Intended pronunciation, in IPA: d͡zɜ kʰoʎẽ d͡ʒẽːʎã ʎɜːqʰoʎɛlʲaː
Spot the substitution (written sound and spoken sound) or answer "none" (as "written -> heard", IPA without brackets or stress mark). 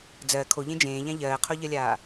ɛ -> ɜ